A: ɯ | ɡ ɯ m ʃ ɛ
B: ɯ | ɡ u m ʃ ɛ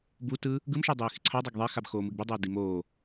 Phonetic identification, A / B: A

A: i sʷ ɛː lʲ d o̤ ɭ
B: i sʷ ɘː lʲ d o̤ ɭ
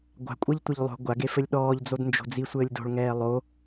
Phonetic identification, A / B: B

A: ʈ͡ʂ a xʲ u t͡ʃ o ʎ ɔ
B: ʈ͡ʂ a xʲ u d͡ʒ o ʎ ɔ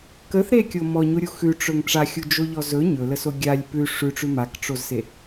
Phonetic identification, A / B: B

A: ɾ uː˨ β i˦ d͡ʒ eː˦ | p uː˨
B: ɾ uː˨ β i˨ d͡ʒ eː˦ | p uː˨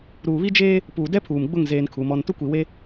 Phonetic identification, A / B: A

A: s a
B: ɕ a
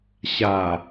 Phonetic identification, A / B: B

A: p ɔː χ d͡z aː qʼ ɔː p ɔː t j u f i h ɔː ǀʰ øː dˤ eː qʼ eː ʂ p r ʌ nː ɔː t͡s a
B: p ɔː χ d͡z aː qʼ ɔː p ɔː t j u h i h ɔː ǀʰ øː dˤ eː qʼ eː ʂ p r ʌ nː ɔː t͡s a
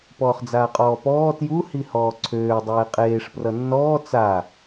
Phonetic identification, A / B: B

